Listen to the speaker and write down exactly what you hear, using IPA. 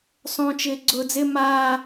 sˤ õ t͡ʃ ɪː ɡ͡ǀ ʊː d͡z ɪ m a

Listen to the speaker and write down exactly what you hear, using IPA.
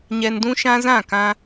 ɲ ɛ˧ n d ũ˦ ʃ ã˦ z ã˦˨ k ã˧

